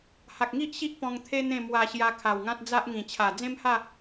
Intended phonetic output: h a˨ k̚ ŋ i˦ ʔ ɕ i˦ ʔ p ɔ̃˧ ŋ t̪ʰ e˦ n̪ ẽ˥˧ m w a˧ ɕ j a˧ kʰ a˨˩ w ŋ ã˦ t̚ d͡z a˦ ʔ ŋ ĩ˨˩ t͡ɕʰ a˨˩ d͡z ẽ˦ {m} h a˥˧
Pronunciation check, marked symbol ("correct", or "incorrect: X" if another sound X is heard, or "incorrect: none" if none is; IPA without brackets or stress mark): correct